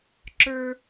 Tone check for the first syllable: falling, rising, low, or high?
high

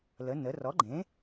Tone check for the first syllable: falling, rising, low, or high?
rising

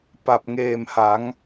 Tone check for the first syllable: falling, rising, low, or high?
low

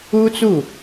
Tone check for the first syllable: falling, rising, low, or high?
high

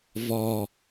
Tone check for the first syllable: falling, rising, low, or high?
low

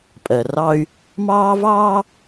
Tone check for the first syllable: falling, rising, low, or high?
low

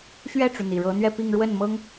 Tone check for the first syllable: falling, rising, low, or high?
falling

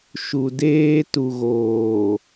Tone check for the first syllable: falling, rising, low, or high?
low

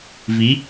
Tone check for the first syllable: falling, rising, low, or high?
rising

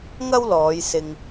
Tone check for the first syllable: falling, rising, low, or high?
high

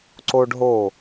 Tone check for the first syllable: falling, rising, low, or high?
high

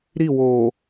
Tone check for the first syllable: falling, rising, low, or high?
falling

